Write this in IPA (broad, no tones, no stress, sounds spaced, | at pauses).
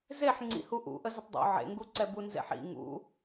z e ħ ŋ͡ǀ ḭ h u ʔ ṵ ʔ ə z ə tˤ dˤ ṵ ʕ ḛ ŋ ɡ u ǀ ɛ b u n z ḛ ħ ḭ ŋ ṵ